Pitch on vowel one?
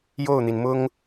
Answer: falling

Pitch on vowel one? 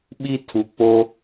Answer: high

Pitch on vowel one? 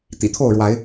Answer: low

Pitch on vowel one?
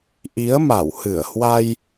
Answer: rising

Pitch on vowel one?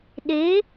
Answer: rising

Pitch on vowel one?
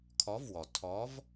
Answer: rising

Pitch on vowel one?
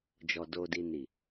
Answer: low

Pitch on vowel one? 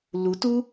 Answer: rising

